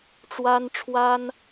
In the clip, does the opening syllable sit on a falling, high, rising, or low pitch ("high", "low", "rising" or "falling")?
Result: high